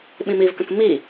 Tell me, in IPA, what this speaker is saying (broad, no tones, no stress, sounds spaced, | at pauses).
ɓ ĩ m i v k ə̃ k m i